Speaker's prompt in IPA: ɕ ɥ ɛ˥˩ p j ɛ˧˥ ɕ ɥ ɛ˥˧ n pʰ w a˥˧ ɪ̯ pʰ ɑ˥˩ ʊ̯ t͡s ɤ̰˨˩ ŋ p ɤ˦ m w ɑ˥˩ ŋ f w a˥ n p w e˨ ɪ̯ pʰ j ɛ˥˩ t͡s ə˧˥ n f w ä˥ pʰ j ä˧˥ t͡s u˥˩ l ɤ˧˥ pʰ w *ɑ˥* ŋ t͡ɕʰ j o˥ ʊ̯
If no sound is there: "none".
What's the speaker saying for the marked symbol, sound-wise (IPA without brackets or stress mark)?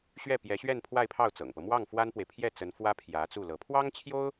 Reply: ɑ˥